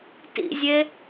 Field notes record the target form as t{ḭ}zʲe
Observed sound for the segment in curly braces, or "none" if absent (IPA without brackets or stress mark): ḭ